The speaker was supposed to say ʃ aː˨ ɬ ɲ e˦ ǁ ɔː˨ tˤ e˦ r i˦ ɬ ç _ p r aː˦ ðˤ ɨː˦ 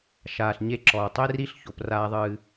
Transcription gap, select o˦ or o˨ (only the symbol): o˨